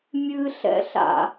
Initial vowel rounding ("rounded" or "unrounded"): unrounded